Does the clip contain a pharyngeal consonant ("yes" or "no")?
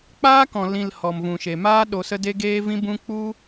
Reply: no